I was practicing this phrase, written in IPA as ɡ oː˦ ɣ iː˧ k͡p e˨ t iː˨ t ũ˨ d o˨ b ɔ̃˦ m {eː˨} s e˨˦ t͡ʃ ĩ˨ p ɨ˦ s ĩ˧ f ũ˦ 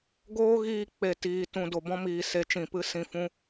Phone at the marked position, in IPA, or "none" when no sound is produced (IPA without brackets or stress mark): iː˨